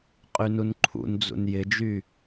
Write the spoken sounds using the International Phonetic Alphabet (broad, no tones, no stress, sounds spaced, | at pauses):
qʼ y n u n ǃʰ ṵ n d͡z ṵ n j ɪ d͡ʒ y